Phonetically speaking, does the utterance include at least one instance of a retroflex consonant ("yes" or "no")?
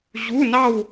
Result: no